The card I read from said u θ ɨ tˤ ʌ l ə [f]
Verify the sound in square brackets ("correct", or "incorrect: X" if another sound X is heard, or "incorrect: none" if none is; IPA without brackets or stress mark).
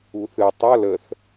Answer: incorrect: θ